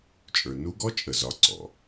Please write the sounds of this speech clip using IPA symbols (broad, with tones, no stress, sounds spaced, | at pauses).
t͡ʃʼ ə˞˩ n u˧˥ ɡ ɔ˧˥ t͡ʃʼ ə˩ z ɒ˩˧ ǀ ɔ̰˩